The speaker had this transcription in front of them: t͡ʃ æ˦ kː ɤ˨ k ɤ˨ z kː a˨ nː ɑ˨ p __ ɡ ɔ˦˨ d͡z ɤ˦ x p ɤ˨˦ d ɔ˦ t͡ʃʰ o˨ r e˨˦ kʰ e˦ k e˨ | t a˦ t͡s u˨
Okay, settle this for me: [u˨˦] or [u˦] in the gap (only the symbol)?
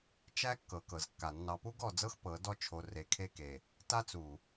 u˦